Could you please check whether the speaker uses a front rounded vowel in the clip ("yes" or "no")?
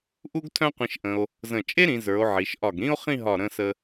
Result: yes